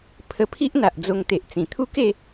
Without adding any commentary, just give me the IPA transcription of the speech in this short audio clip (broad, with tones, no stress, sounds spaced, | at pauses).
pʰ ə˧ pʰ i˦ ʔ n̪ a˨ ʔ d͡z o˧ ŋ t̪ e˨ ʔ t͡s ĩ˨˩ t̪ʰ u˦ k e˥˧